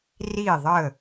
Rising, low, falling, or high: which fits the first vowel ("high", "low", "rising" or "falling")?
falling